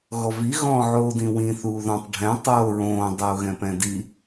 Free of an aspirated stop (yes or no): yes